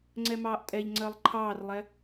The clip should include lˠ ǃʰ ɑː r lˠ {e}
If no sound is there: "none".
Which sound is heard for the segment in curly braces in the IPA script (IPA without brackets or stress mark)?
ɛ